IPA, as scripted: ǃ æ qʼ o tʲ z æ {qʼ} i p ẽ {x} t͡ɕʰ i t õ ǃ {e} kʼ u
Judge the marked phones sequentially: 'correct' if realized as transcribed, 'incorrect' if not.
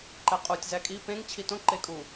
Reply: incorrect: kʼ, incorrect: ŋ, correct

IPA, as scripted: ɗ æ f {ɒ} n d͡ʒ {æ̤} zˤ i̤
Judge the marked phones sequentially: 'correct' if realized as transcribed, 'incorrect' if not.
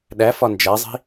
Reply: correct, incorrect: æ

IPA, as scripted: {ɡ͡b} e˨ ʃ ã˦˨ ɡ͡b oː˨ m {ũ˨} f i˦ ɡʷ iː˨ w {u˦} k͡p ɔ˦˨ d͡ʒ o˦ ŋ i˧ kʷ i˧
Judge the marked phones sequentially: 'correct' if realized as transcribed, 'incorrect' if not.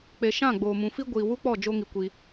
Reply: incorrect: k͡p, correct, correct

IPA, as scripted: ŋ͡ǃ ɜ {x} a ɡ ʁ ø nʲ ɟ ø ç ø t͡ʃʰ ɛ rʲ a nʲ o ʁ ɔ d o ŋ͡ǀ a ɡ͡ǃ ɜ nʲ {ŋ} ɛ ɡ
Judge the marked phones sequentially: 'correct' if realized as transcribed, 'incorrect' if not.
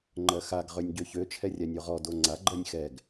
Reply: correct, incorrect: x

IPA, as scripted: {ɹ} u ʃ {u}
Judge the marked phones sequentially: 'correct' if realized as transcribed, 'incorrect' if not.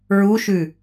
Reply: correct, incorrect: ʉ

